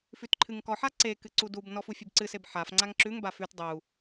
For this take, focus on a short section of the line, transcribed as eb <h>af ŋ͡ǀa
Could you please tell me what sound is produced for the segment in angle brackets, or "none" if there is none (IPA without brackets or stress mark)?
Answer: ħ